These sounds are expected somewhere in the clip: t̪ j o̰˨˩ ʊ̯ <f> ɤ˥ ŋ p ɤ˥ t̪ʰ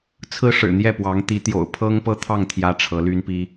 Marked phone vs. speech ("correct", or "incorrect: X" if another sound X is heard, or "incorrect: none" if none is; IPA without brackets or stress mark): incorrect: pʰ